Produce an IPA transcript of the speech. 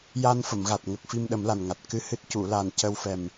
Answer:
j a˧ n f ə˨˩˨ m ɣ a˨˩ t̚ ŋ ə˨˩ k̚ f i˧ m ɗ ə˨˩˦ m l a˨˩ n ŋ a˨˩ t̚ k ɨ˧ h ɨ˦˥ t̚ c u˨˩˨ l a˨˩ n c ə˧ w f ɛ˨˩ m

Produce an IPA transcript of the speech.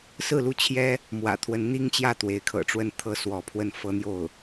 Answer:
s ɹ̩˥˧ l u˥˩ t͡ɕʰ j ɛ˥ | m w ä̰˨˩ t̪ʰ w ə˧˥ n n̪ i˥ ŋ t͡ɕ j ä˥˩ t̪ w e˧˥ ɪ̯ kʰ ɤ̰˨˩ ʈ͡ʂ w ə˥˩ n t̪ʰ ɤ˥ s w ɔ˧˥ pʰ w ə˥˩ n f ɤ˥ n̪ j o˥˩ ʊ̯

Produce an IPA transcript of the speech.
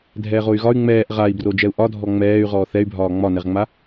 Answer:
dʱ ɛː ʁ o y̯ ɣ ɒ y̯ ŋ͡m ɛː ʔ ʁ a i̯ b r o d͡ʒ ɛ u̯ ʔ ɒ dʱ ɔ ŋ͡m ɛː y̯ ʁ ɔː θ ɛ y̯ bʱ ɒː ŋ͡m ɒ n ɛ ʁ ŋ͡m a

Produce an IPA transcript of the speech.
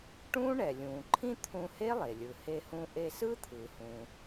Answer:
ʈ ũː˥ ɳ ɛ˩ lʲ ũː˩ ǃʰ ĩ˥ t̪ʰ ũ˧ h e˥ lˠ e˩ lʲ ɯ˩ h e˧ h ũ˧ ʔ e˧ s ɯ˥ t̪ʰ ɯ˩ h ũ˩

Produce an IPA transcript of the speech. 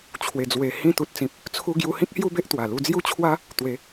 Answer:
t͡ɕʰ w e˨˩ d͡z w e˨˩ h ĩ˧ t̪ u˨ t̚ t͡s ĩ˨ p̚ | t͡sʰ u˧ ɡ j u˧ h ĩ˦ k̚ h j u˥˧ b e˦ ʔ t̪ w a˨˩ l u˧ d͡z j u˥˧ t͡ɕʰ w a˦ | t̪ w e˨˦

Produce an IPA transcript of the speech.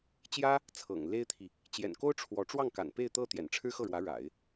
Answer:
t͡ɕ j ä˥ | t͡sʰ ɤ̰˨˩ ŋ l e˥ ɪ̯ t̪ʰ i˨ | t͡ɕ j ɛ̰˨˩ n k o˥ ʊ̯ ʈ͡ʂʰ w ɔ˧˥ ʈ͡ʂ w ɑ˥˩ ŋ k a̰˨˩ n p e˥˧ ɪ̯ t̪ ɤ˥˩ t̪ j ɛ̰˨˩ n ʈ͡ʂʰ ɻ̩˥ x ɤ˥˩ ɻ w ä˧˥ ɻ a̰˨˩˦ ɪ̯

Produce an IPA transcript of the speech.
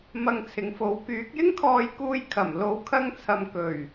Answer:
m ɐ˧ ŋ t͡sʰ ɪ˨˧ ŋ f o˨˥ w k yː˨˥ k̚ j ɪ˥ ŋ kʰ ɔː˧ j k uː˧ j kʰ ɐ˨˩ m l o˨˥ w kʰ ɐ˧ ŋ t͡sʰ ɐ˨ m k ɵ˨˩ ɥ

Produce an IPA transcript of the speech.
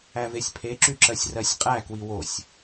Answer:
æ v e sʲ pʰ e ǁ y ǁ ɜ sʲ r ɜ sʲ qʼ æ k w i w o sʲ

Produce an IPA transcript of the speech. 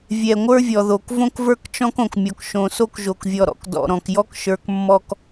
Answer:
vʲ ɛ˨ ŋʷ ə˞˦ vʲ ɔ˨ ð o˨ k v õ˦ k v ə˞˦ k t͡ʃ ɔ̃˦ k õ˨ k mʲ ɔ˨ k ʃ õ˨ s o˦ k ʒ o˨ k vʲ ɔ˨ ɾ ɔ̰˨ k d ɔ̰˨ ɾ ɔ̃˨ k j ɔ˦ k ʃ ə˞˨ k mː ɔ˨ k

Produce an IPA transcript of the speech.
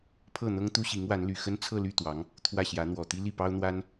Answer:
pʰ ɤ˥˩ n̪ ɤ˥ ŋ t̪ u˥ ɕ i˧˥ ŋ w a˧˥ n l y˨˩ x ə˥ n t͡sʰ ɤ˥˧ l y˥˩ t̪ w ɑ˧˥ ŋ | t̪ʰ w ä˥˩ ɕ j ä˧˥ n̪ w ɔ˨˩ t̪ i˥ l i˥˩ p ɑ˥ ʊ̯ n̪ w a˥ n

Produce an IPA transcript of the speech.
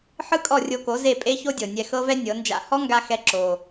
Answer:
ħ ɯ˥ kʼ ɔ˥˩ rʲ o˧ k o˩˥ z e˥˩ pʼ e˥ ç o˥ dʲ ɤ˩ nʲ ɛ˧ x ɤ˥ v ɛ˥ nʲ ɤ˩˥ n d͡ʒ a̰˥˩ h ɔ˥ ŋ ɡ a˧ x ɛ˧ ǁ o˩

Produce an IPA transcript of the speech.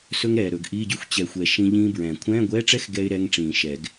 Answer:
s ɵ˥ ŋ ɾ ɛː˨ ɾ ɵ˨˩˦ ɡ ʔ iː˧˥˧ ɟ y˥ xʷ t͡ɕ ɛ˨ xʷ ɛ˨ ʃ ĩ˥ ʎ ĩː˥ b ɹ ɛ̃ː˨˩˦ kʷʰ ɛ̃ː˧˥˧ ɡʷ ɛː˧˥˧ ʈ͡ʂ ɛ˥ x ɡ ɛ˥ ɪ̯ ɾ ɛ˧˥˧ ŋ ʈ͡ʂ ĩː˨˩˦ ʃ ɛ˨˩˦ ɡ

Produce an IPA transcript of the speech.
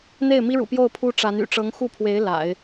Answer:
n̪ e˥˩ ɪ̯ m i˥ ɻ ṵ˨˩ p j o˥˩ ʊ̯ pʰ u˥ ʈ͡ʂ a˧˥ n y̰˨˩ ʈ͡ʂ ɤ˧˥ ŋ x u˥˩ pʰ w e˧˥ ɪ̯ l a̰˨˩˦ ɪ̯

